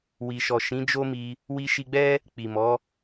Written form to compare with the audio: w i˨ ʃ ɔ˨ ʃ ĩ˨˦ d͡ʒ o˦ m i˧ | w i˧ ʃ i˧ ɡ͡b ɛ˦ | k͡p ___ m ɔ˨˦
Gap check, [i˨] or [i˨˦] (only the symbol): i˨